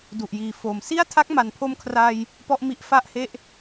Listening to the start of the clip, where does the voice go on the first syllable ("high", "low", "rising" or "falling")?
low